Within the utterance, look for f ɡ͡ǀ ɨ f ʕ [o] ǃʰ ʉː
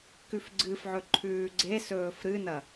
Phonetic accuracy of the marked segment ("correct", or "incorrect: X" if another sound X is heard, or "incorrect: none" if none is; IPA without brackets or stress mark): incorrect: ɵ